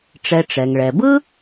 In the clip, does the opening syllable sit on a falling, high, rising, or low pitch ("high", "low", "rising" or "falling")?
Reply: low